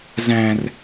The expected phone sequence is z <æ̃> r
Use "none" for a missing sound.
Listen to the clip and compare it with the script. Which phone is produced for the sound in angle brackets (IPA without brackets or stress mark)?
æ̃